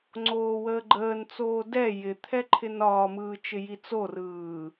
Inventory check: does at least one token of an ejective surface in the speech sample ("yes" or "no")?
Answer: no